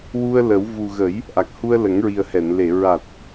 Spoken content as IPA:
w u˧ ə̯ l ə˨˩˦ w v u˨˩ ɣ ə˨˩˦ j | ʔ a˨˩ k̚ h u˧ ə̯ l ə˨˩˦ ŋ ɹ i˨˩ ə̯ h ɛ˨˩˨ n l e˨˩˨ ɹ a˨˩ t̚

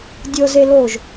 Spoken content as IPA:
dʲ ɤ z e l o ʒ

